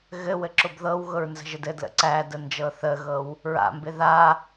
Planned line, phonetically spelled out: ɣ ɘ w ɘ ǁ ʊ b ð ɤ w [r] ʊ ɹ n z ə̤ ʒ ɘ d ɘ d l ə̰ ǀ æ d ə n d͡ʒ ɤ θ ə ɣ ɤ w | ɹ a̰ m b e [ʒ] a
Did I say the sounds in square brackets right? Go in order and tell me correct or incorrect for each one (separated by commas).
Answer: incorrect, incorrect